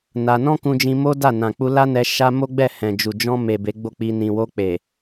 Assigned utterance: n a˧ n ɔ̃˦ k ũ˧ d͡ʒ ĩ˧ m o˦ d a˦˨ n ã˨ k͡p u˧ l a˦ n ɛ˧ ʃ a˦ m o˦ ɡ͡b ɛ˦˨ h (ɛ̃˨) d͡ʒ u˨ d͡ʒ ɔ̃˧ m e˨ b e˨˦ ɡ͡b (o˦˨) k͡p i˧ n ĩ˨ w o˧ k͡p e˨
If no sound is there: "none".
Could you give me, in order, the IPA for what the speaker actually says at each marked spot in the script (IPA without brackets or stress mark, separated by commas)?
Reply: ɛ̃˨, o˦˨